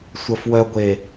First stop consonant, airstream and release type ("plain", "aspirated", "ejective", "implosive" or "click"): plain